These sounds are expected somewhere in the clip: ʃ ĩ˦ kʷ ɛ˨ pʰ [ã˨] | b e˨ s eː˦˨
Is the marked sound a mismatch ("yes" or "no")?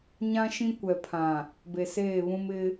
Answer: no